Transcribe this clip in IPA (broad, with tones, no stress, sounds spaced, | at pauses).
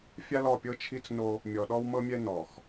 fʲ a˦ l ɔ˦˨ pʲ ɤ˦ t͡ʃʰ i˦ t͡s n o˦ | mʲ ɔ˨ ɗ ɔ˦ w m ɤ˦ mʲ ɛ˦ n ɔ˨ x